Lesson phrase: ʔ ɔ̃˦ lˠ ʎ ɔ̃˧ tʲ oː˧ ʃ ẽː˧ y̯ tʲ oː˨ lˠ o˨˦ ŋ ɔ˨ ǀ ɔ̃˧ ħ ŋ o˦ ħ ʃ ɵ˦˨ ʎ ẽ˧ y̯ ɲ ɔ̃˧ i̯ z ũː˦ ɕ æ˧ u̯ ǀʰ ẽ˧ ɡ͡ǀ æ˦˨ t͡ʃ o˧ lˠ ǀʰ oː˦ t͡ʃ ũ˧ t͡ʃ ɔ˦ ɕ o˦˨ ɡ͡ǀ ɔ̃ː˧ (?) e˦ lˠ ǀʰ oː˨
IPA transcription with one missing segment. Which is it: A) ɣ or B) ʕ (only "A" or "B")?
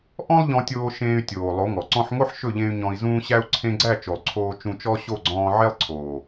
B